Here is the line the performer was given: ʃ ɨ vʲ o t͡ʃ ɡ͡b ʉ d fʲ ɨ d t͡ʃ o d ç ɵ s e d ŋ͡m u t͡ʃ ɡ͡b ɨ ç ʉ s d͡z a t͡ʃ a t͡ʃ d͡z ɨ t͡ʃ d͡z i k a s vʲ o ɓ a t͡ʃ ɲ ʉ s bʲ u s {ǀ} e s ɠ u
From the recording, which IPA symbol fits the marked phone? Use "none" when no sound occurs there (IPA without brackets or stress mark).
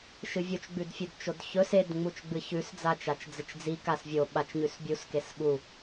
k